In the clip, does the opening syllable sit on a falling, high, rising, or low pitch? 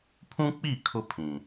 high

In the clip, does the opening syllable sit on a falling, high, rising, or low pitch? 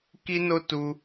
high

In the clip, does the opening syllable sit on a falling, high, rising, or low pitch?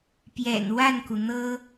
low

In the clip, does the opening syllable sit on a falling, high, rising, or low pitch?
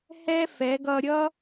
high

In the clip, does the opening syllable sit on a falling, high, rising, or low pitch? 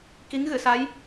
rising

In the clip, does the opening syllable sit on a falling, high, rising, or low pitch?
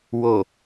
low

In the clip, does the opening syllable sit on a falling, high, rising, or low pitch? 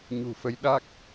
low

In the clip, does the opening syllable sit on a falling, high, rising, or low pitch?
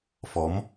rising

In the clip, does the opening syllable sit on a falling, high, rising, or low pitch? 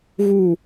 falling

